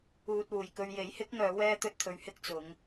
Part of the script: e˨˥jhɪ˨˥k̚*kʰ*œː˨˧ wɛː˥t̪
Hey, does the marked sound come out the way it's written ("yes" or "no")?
no